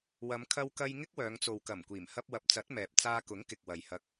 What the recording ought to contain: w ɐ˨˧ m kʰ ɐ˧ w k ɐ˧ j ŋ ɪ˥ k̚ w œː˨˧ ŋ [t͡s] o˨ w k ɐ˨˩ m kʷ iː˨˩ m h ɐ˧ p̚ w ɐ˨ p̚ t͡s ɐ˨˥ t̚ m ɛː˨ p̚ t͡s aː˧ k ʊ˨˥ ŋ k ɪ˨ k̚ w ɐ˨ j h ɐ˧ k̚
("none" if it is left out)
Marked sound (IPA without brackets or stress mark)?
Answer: t͡s